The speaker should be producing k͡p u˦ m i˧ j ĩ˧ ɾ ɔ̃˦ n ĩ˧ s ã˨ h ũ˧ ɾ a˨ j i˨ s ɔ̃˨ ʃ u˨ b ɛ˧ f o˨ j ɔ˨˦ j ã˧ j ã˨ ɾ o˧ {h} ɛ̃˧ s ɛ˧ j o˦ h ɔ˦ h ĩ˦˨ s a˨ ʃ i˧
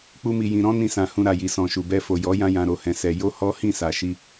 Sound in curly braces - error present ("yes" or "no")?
no